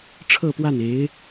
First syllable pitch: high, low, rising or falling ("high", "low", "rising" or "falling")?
falling